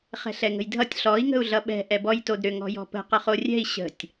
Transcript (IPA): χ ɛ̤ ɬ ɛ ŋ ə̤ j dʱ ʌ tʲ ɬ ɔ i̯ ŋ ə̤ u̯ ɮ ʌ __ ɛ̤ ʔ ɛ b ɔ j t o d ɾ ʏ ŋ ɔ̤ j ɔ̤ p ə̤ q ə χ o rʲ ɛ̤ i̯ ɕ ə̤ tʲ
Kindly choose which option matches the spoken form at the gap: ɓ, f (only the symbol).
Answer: ɓ